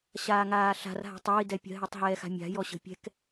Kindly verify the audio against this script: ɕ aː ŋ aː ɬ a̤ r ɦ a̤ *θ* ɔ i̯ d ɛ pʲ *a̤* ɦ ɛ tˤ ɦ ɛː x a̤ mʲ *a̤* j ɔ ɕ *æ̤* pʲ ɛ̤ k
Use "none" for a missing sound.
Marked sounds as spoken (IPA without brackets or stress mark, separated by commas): tˤ, ə̤, a̤, ə̤